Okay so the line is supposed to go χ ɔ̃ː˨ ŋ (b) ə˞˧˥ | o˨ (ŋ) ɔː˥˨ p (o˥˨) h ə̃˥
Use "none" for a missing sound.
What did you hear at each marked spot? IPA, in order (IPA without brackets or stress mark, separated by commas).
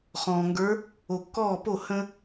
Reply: ɡ, kː, o˥˨